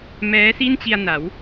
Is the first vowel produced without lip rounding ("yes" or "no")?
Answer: yes